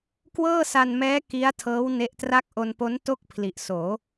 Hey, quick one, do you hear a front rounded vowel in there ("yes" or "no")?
no